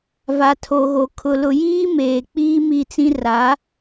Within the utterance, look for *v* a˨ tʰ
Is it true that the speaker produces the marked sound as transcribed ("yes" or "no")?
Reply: yes